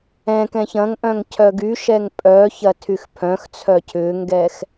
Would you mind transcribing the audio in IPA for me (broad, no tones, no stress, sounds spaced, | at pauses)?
ɛ̃ k ɛ̃ ç ɐ̃ ŋ ʔ œ̃ ŋ cʰ œ ɡ y ʃ ɛ ŋ pʼ œ ç ɐ tʰ y x pʰ œ̃ x t͡sʰ œ cʰ ʏː ŋ ɡ ɛ x